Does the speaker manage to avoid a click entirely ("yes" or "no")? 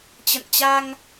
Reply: yes